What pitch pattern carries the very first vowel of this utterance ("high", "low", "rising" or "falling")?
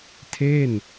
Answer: falling